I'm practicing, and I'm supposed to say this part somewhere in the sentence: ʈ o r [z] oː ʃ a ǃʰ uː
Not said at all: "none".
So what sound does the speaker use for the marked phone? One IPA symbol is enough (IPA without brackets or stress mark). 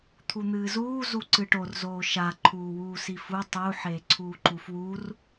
z